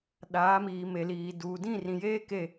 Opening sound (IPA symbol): ɗ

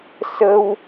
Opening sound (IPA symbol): s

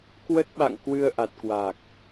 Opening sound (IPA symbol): k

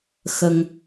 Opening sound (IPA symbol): x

